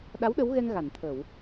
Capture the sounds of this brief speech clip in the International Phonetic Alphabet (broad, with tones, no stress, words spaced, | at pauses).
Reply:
ɗa˧˥w ɗə˧˥wɣɛ˧ŋ ɣa˨˩˨n t̪ʰə˨˩˨w